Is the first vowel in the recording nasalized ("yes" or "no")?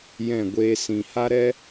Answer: yes